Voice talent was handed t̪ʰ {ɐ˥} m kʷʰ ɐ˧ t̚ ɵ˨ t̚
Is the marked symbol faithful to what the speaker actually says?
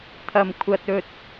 no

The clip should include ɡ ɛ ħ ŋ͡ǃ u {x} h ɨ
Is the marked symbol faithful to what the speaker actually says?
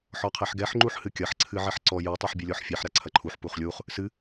no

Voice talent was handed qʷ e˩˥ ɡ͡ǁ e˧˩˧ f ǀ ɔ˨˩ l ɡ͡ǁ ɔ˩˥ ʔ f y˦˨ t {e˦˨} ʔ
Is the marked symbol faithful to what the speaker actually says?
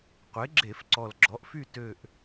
no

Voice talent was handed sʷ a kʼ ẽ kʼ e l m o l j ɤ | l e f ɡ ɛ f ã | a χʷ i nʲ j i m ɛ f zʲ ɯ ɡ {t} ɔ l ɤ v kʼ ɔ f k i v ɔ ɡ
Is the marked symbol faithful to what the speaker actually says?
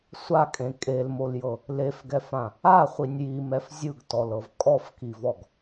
yes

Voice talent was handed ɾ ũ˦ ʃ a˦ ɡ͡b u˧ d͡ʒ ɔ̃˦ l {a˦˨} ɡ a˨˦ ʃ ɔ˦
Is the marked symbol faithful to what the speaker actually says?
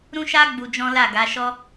yes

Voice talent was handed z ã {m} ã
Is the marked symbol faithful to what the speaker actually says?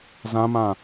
yes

